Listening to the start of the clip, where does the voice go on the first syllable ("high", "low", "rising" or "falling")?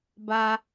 high